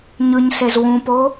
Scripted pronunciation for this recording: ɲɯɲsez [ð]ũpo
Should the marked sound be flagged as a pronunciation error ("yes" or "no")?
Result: yes